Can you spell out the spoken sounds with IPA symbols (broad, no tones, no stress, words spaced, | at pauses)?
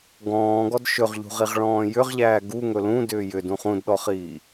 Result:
ɡɔ̃ːɡɔd ʃɵʁʎṳʁiʁɭɔ̃ː jʏʁʎæː ɡuŋɵ lũdʏː jʏdũ χũdɗɔχiː